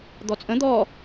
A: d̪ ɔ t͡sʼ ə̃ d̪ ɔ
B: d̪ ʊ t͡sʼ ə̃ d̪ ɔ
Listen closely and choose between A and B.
A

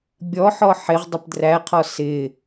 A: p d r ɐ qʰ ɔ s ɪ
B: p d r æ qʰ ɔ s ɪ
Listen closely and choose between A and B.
B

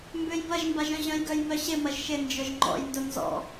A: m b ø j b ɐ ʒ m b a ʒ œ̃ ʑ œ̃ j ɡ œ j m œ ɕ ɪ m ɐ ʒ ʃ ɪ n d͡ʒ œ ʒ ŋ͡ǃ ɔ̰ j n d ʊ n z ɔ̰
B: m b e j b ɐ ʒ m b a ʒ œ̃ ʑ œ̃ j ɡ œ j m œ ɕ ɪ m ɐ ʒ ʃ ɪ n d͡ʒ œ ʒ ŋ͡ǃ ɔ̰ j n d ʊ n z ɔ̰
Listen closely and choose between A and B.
A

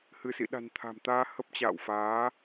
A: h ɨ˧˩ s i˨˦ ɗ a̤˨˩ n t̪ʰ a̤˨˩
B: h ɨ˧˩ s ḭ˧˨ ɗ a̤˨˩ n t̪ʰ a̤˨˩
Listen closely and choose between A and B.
B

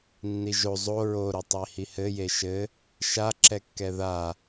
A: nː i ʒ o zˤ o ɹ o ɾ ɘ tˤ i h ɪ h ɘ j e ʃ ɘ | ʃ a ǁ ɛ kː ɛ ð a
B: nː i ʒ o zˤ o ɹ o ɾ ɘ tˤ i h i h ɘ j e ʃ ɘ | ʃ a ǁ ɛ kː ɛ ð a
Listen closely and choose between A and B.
B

